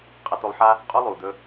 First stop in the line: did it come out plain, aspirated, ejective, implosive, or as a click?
ejective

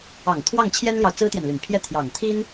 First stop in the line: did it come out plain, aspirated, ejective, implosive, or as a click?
aspirated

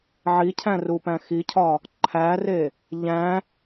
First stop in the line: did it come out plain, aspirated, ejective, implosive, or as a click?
aspirated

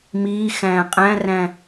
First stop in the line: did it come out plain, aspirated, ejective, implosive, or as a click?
ejective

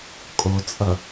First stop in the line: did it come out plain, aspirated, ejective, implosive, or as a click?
ejective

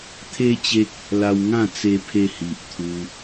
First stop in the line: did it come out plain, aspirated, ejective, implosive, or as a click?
aspirated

